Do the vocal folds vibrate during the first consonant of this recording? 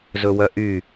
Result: yes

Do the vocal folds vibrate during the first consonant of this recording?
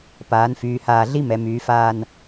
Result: no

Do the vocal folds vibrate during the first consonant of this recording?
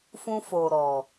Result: no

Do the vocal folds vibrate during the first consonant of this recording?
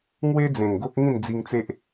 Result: yes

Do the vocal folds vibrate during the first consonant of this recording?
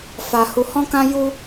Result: no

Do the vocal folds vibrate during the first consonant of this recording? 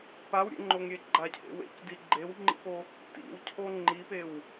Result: no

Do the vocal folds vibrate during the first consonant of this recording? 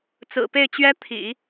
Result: no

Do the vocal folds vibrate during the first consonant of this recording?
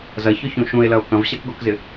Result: yes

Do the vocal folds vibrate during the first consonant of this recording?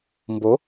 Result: yes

